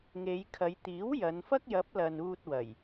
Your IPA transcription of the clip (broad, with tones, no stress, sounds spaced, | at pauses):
ŋ e˨˧ j kʰ ɐ˨˧ j t̪ iː˨˥ w j ɐ˨˧ n f ɐ˥ k̚ j ɐ˨˥ p̚ l ɐ˨ n uː˧ t̚ w ɐ˨˩ j